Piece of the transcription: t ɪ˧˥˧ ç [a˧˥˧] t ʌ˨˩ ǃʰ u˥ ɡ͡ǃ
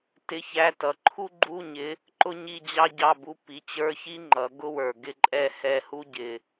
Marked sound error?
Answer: yes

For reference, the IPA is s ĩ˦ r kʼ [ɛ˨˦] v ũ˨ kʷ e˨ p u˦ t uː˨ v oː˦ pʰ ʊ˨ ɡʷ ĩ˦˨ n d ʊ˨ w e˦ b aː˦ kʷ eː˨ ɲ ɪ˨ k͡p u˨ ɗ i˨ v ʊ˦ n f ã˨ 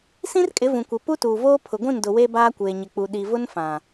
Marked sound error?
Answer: yes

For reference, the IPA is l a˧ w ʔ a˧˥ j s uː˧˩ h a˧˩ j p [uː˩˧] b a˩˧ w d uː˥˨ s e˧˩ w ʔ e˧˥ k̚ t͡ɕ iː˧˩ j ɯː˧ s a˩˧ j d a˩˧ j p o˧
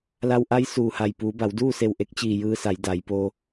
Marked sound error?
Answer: no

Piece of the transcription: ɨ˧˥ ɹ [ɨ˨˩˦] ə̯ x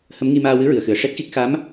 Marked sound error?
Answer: yes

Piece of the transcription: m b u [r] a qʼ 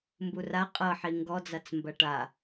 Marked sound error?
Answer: no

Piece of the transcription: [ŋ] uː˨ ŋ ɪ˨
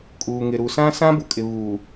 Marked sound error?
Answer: yes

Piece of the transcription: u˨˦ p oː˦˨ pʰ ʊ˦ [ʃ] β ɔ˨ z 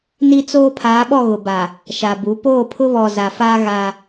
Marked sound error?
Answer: yes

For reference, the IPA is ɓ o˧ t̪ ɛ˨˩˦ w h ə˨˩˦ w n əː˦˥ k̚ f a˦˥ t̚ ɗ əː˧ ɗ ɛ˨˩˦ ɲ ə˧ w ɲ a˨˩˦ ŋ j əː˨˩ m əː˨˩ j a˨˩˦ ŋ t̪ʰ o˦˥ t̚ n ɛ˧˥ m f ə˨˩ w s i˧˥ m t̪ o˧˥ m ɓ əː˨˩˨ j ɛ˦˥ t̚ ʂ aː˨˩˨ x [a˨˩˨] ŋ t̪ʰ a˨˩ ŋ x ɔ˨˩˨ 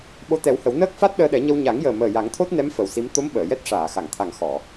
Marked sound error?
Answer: no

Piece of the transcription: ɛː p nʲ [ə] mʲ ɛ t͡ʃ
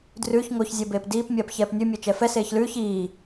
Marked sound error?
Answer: yes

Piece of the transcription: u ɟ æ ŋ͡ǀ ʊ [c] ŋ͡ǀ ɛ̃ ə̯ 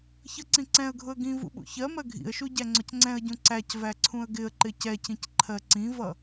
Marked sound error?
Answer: no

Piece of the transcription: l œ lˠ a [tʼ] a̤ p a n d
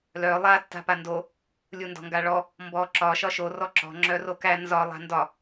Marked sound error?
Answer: yes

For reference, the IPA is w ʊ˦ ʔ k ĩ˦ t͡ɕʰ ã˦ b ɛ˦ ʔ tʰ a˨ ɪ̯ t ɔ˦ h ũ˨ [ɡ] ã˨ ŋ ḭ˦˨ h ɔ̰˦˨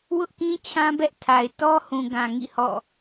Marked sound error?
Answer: no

